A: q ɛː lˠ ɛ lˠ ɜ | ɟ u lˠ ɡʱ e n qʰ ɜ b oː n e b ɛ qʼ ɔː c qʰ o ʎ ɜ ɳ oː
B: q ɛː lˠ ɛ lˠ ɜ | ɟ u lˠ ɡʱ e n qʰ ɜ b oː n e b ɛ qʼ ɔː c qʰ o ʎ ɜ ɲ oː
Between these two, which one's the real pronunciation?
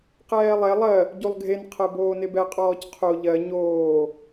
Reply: B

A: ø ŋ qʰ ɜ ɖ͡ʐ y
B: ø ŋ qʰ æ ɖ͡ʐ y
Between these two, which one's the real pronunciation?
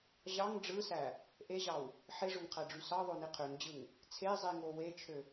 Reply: B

